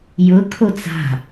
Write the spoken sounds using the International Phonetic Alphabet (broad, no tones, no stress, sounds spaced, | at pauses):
j ʊ kʰ o t͡s a̤